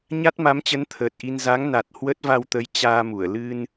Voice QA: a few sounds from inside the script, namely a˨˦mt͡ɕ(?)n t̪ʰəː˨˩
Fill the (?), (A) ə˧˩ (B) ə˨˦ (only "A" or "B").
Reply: B